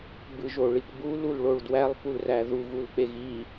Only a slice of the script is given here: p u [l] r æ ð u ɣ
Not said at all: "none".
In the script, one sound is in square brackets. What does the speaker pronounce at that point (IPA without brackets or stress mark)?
l